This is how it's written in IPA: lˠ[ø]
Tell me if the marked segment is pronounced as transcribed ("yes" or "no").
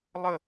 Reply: no